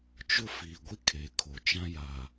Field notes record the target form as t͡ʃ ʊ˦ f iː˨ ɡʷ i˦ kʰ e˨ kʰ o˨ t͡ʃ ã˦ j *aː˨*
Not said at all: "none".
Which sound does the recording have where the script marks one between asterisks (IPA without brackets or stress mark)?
aː˨